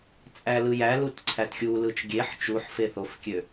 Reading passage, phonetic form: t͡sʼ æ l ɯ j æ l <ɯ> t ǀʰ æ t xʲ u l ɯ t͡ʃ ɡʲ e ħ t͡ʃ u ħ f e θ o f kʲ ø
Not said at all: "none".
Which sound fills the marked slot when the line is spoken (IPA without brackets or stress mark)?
u